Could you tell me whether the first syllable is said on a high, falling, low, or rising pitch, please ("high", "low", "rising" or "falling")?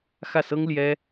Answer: falling